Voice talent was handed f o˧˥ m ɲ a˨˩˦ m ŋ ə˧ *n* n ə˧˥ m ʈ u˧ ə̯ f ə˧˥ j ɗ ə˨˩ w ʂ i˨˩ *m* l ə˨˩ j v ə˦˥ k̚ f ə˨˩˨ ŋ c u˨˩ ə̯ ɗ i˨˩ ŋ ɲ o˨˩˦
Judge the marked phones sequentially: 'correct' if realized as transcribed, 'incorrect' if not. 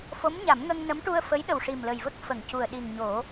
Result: incorrect: ŋ, correct

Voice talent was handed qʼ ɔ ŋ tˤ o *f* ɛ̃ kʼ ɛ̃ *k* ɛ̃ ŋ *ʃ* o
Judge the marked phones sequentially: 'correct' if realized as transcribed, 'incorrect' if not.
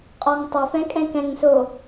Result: correct, correct, incorrect: s

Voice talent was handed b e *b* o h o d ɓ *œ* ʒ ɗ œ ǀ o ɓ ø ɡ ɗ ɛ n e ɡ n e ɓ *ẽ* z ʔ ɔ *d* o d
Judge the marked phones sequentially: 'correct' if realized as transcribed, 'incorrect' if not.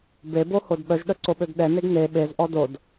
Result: correct, correct, incorrect: e, correct

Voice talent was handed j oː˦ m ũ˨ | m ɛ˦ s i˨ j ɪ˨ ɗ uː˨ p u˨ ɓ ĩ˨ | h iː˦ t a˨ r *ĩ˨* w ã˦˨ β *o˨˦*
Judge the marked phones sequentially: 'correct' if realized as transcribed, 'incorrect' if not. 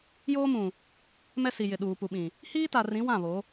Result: incorrect: ĩ˨˦, correct

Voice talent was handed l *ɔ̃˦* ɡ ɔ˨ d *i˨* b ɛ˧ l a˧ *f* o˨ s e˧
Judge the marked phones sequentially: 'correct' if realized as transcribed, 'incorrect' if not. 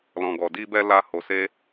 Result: incorrect: ɔ̃˨, incorrect: i˧, incorrect: h

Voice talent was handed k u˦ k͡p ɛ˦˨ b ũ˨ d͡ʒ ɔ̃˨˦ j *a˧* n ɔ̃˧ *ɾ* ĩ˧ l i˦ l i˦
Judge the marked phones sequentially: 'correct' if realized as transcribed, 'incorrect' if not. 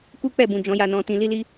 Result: correct, incorrect: t

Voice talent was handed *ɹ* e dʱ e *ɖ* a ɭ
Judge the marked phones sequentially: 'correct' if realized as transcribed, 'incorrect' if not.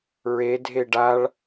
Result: correct, correct

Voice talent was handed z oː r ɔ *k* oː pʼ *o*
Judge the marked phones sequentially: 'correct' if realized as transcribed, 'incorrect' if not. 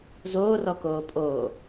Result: correct, incorrect: oː

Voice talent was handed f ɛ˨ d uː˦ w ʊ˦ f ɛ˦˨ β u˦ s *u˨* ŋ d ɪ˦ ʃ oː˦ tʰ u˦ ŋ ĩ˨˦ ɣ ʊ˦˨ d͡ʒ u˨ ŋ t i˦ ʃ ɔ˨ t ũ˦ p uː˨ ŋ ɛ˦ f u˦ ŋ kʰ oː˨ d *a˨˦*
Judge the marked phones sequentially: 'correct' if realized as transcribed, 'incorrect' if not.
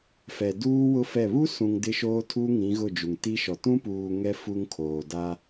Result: incorrect: ũ˨, incorrect: a˦

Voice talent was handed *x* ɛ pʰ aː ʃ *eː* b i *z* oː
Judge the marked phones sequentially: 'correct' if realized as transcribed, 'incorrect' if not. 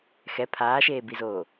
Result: correct, correct, correct

